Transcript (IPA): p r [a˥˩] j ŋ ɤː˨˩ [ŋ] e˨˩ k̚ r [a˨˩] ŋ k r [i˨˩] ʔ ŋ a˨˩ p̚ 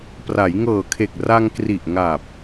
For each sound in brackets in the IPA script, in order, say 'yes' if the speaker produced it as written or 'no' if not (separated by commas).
no, no, no, yes